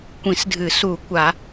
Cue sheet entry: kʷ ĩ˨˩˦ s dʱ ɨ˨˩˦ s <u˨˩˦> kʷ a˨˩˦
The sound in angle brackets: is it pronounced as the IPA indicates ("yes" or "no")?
yes